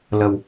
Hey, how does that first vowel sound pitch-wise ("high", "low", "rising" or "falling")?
low